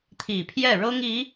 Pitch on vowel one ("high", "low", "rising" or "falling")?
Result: low